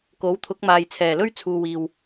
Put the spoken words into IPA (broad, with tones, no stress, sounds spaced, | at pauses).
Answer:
k o˨˥ w t̪ʰ ʊ˨˥ k̚ m aː˨ j t͡sʰ ɛː˨˩ l ɵ˥ ɥ t͡sʰ uː˨ w iː˨ w